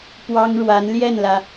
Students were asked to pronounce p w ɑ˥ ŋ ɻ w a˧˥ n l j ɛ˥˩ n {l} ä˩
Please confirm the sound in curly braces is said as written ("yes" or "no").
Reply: yes